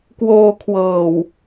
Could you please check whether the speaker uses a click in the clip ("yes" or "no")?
no